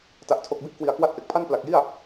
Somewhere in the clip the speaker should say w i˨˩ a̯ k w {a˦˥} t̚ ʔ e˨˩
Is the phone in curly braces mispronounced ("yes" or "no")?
no